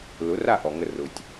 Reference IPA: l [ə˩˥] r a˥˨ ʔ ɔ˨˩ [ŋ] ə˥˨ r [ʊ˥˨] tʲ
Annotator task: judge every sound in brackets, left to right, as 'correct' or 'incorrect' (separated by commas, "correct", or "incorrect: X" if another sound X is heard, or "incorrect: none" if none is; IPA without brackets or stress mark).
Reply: incorrect: ʊ˩˥, correct, incorrect: ʊ˨˩